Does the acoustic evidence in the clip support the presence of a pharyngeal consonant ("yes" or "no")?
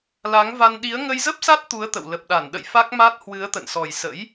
no